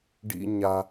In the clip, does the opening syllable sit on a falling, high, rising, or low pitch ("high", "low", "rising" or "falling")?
low